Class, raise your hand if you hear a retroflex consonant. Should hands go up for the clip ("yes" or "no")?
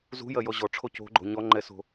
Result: yes